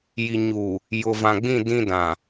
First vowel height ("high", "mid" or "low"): high